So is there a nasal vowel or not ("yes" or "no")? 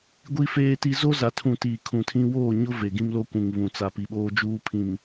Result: yes